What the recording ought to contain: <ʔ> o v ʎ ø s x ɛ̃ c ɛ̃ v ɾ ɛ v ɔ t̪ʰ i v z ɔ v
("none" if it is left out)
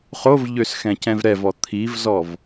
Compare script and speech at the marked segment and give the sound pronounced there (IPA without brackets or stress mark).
χ